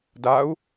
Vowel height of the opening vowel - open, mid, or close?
open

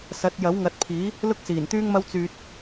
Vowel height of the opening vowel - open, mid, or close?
open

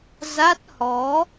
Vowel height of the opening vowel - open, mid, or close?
open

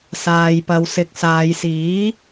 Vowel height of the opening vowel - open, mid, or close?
open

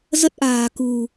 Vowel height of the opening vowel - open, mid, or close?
mid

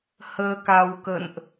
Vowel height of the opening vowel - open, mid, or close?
mid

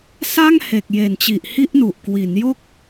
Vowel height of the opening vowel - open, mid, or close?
open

